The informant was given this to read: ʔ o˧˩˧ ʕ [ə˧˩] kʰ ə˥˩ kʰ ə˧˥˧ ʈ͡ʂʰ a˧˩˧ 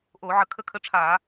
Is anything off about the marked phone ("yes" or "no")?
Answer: no